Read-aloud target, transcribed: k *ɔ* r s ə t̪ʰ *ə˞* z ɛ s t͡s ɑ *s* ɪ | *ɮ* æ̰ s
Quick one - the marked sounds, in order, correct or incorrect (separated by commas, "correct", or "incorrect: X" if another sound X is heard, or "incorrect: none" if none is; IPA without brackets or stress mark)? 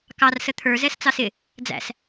incorrect: ɑ, correct, correct, incorrect: d͡z